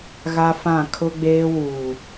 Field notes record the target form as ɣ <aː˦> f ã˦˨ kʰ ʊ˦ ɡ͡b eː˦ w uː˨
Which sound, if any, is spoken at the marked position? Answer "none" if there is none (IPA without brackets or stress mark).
a˦